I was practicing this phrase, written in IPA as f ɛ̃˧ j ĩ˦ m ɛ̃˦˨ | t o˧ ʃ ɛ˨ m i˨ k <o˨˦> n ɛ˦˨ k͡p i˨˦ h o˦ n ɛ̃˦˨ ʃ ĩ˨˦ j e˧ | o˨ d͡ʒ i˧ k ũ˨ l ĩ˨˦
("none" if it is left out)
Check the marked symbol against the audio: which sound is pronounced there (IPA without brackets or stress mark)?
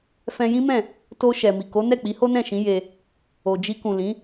o˨˦